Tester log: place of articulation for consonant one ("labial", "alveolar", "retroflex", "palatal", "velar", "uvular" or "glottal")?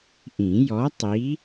glottal